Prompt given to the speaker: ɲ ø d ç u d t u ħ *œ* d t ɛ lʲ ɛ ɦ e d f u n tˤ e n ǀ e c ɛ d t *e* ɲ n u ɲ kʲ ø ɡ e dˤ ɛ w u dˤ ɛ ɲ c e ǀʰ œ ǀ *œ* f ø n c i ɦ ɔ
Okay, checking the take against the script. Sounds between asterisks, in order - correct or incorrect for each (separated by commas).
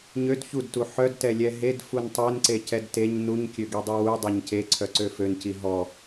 correct, correct, incorrect